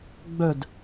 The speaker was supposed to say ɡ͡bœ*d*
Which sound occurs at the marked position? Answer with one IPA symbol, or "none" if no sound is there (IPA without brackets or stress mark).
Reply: d